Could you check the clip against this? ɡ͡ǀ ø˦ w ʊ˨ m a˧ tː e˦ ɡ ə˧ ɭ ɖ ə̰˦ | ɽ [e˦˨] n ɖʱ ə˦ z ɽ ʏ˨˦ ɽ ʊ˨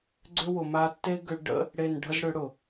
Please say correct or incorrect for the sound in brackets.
correct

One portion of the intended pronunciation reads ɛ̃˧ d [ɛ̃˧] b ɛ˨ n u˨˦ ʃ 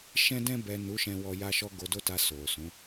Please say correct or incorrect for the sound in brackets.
correct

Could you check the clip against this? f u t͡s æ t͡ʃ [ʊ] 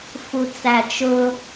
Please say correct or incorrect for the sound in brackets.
correct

